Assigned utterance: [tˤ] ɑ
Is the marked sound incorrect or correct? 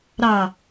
incorrect